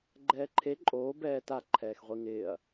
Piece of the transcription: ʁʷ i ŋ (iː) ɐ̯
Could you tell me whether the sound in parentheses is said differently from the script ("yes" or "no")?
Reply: yes